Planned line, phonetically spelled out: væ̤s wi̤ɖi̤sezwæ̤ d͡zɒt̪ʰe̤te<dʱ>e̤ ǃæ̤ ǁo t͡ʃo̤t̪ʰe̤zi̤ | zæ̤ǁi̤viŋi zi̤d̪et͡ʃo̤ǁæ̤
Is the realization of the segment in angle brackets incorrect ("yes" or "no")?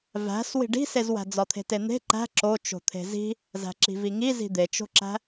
yes